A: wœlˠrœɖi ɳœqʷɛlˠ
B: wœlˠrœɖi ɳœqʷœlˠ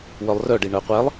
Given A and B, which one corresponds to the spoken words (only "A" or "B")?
A